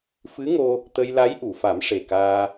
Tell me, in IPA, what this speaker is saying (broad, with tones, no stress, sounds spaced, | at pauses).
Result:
f ɨ˧˥ ŋ o˧ | t̪ ə˧ j l a˧˥ j ʔ u˨˩˨ f a˨˩˦ m ʂ e˨˩ k aː˧